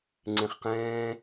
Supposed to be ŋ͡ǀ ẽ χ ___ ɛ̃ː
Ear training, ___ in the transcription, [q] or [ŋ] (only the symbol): q